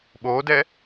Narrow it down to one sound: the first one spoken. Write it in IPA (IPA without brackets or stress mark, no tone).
ɓ